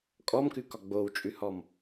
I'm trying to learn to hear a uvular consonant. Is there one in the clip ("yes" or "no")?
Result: no